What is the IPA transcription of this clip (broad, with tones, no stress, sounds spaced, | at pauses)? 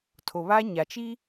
tʰ o˨ β a˦ ɲ a˨ t͡ʃ i˦